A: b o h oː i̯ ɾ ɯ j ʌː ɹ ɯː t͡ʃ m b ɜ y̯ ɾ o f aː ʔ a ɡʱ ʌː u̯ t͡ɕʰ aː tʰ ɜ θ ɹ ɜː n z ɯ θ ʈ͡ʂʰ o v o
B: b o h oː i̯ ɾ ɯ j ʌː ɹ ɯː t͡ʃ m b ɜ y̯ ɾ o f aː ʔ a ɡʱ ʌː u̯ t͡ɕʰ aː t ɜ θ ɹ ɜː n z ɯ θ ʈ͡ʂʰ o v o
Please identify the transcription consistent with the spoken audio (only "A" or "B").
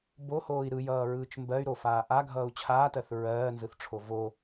B